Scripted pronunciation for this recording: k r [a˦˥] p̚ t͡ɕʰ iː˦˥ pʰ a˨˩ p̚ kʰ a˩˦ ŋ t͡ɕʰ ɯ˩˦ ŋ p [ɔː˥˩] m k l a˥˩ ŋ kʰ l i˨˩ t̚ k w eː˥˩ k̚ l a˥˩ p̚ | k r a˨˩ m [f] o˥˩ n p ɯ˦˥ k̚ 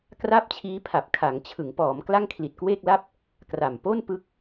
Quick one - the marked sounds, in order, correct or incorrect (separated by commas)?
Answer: incorrect, incorrect, incorrect